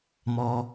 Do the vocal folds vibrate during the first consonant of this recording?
yes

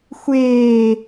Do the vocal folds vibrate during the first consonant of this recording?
no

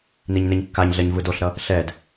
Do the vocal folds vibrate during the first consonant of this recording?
yes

